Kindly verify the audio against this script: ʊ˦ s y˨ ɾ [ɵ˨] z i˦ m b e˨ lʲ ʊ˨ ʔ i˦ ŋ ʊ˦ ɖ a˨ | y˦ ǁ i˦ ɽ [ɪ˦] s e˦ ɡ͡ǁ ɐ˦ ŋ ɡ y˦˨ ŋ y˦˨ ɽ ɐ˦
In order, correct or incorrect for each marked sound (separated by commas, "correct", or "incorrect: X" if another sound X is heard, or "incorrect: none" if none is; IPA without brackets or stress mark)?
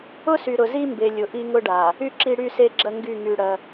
incorrect: ʊ˨, incorrect: y˦